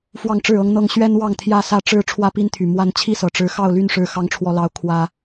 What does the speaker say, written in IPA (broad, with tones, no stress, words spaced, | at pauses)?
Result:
fwɑ˥˨ŋʈ͡ʂɻ̩˥˨ɤ˦ŋn̪ɤ˦ŋ ɕɥɛ˦nwɑ˥˨ŋ t̪ʰjä˥˨sä˥˨ ʈ͡ʂɻ̩˥˨ ʈ͡ʂʰwä˥˨pi˦nt̪ʰy˨˩ mwa˥˨n t͡ɕʰi˥˨sɤ˨˩ ʈ͡ʂɻ̩˨˦ xɑ˥˨ʊ̯ly˥˨nʂɻ̩˨˦ xɑ˨˦ŋʈ͡ʂʰwɔ˨˩lɑ˨˦ʊ̯ kʰwä˦